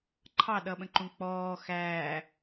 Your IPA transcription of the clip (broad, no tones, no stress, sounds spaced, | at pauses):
ǃʰ ɑ ɗ ʌ ɓ ə̃ ǃ ũ k͡p ɔː x æː